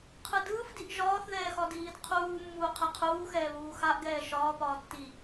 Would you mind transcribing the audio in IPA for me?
qʰɯdɯːfdiʔ ʒɒːθðɛːxɒdiːd qʰuː mːuːqʰɛqʰuːxɛː βuːxaʔ ɡɛːʃɒːpɒː tːi

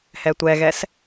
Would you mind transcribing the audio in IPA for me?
hɛtʷɛɣɛs

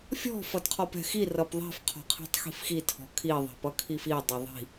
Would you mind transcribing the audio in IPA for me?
fʲɔ̤ fʌdqʰɔpɛ̤xi rʌpðˤɛ̤f qʰɔ̤qʰi̤tˤxi̤fxi tʰɔ̤kʰi ðˤɛ̤pʌkʰifi dˤɛðˤi̤

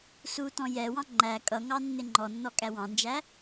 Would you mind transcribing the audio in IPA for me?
sutɔ̃ jɛwɑ̃ ŋ͡ǃæ kʼʌŋɑ nːɪŋ͡ǃɔnːɔ kʼæwɑ̃nd͡ʒæ

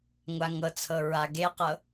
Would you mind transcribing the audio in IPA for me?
ŋʷaŋɤt͡sʰɤ ɹaɡeqɤ

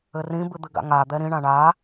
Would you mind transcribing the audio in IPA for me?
ɘrĩ bɨd̪ɨɡa̰ŋa d̪ɛɾĩ ɳãɳa

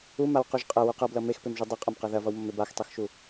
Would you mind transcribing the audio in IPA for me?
umawquʒ qʼɐwuq ʌblʌ mexpemʒu dˤɐqʼɐmqɐ ðɐvʌwmʌme baxtˤøxʃu

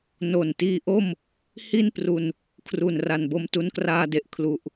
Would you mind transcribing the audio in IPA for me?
no˨˩ntiː˦˥ʔo˥˩m | hi˥˩npru˧n | kʰru˨˩nra˨˩nbo˧m tu˧nkraː˧de˨˩ʔ kʰlu˨˩ʔ

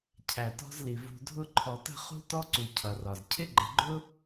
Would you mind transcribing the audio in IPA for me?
cʰæ˩tɔ̤˦zli˩ vṳ˨dʱʊ˦ ǃʰɔ˨tə̤˥ χṳ˥tɔ˥ǀu˨ cʰʌ˩rɒ˩z cʰɪ˥ɡ͡ǃə˨ɡ͡ǃʊ˥

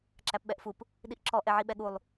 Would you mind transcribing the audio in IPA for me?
ǁæpɓɛʔfup | ɗiʔǁɔ ʔɛʕiɓɛɠulˠ

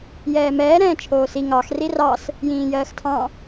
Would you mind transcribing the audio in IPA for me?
jɛːmɛː ɾɛ̃ːt͡ʃʰoːsi ŋɑx rirɑs | jĩːjɜːxtʰɑ̃

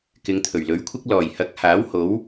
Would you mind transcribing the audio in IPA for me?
kɪ˨˧ŋt̪ʰɵ˨˩ɥlɵ˨˥ɥkʷʰɪ˥k̚ lɔː˨˩jhɐ˨˥k̚ haː˨˥w ho˨˥w

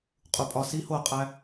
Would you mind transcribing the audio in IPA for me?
qʼupʼɒsi hoqʼæ

